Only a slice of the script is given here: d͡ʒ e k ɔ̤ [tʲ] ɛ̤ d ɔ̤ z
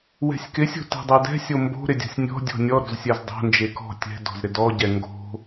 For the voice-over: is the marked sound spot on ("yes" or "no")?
yes